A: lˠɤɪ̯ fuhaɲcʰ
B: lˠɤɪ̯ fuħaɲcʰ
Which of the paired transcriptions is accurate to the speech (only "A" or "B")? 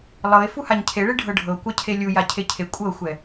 A